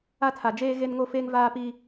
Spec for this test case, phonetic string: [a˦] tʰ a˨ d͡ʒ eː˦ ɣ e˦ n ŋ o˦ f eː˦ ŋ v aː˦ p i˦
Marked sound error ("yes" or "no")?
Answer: no